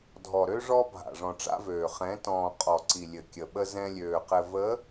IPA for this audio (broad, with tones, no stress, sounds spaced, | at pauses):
dʱ ɔ˨ ɾ ø˦ ʐ ɔ˦ bʱ a̰˨ ʐ ɔ̃˨ ʈ͡ʂ a̰˦ v øː˨ χ ɛ̃˨˦ t ɔ̃ː˨ qʼ ɔ˨ ǀ i˨ lʲ ɘ˨ kʲ ə˨ ɓ ə˦ z ɛ̃˦ lʲ øː˨ q ɘ˨ v ə˨˦